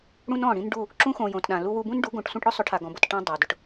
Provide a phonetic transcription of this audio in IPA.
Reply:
ɽũ˦nɔ̃˦˨ɽĩ˦n ɖu˦˨ | ǁũ˦xõ˨ jõ˨tɗã˨ lu˧wu˧bũ˦nɖu˨˦ ɡõ˨ʈsʷĩ˧ʈɽʊ˦ sˤʊ˨˦ʈʰa˨ɡɔ̃˨bʊ˨t ʈã˧ dˤa˨dʊ˧ʈ

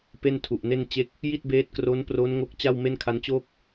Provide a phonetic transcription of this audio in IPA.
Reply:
pe˥˩ntʰu˨˩ʔne˥˩nt͡ɕe˥˩k̚ | ji˥˩t̚beː˦˥t̚kro˦˥npro˦˥n ŋo˦˥k̚ t͡ɕa˥˩wme˥˩nkʰa˦˥nt͡ɕoː˥˩k̚

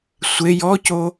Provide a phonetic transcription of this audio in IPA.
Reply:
sʷe jɔco

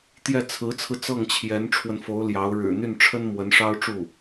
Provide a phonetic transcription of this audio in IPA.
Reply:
t̪jɛ˥˩ t͡sʰɹ̩˧˥t͡sʰɹ̩˧ t͡sɤ˥˩ŋt͡ɕʰjɛ˧˥nʈ͡ʂʰwə˧n fo˧˥ʊ̯ ljɑ˧˥ʊ̯ ɻɻ̩˨˩n̪y˥˩nʈ͡ʂʰə˥nmwə˧˥n ʂɑ˥ʊ̯ʈ͡ʂu˥˩

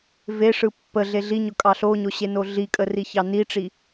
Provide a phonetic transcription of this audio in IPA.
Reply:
veʂɯ pːə ɮeɮiɲʊ kʼɑɬoɲo ɕenoɮikʼə riçɑniʈ͡ʂi

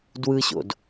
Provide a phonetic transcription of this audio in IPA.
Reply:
dwɯɕo̰d

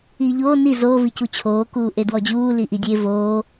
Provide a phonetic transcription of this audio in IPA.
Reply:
iːʎoː ni zoː vicut͡ɕʰoː kuːʔedwɔd͡ʑuː liʔidʲe voː

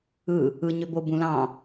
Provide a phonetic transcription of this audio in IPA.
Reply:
ɯ | ɯ ɲøbo bũlɑ̃

